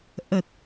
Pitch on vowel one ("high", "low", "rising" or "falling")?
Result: low